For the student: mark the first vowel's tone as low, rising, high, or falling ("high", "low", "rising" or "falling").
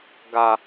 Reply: low